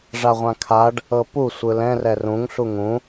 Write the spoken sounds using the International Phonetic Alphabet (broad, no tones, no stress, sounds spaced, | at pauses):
ʐ a ʁʷ ã kʰ a ɖ | ɤ p u sʷ ɯ l ɛ̃ r ɛ r ũ ŋ ɬ u ŋ ũ